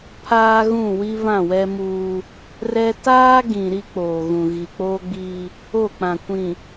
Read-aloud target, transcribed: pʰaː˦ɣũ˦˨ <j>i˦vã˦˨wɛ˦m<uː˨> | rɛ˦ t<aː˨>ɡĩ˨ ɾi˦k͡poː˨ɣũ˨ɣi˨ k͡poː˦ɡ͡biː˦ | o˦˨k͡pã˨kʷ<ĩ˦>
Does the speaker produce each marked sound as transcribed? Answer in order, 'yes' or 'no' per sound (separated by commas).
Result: no, no, no, no